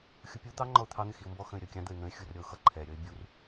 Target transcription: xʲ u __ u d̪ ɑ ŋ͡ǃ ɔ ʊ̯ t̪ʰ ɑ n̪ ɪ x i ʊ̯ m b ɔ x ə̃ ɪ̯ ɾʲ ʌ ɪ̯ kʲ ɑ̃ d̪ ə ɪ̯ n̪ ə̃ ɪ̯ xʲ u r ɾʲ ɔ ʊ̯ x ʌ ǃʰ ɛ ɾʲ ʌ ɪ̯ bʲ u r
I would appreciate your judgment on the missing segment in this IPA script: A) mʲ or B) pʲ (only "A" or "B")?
B